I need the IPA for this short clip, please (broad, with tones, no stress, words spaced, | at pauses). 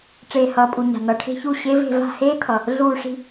ʈ͡ʂeː˨˩hʌː˨˩pʼu˨˩ɲa̤˨˩ n̪ʌ˨˩ʈʰe̤˥˧çu˥˧ ɕe˦˥ve̤˥˧ va̤˥˧heː˦˥t̪ʰʌ˨˩ | ɮuː˥˧ ʂi̤˥˧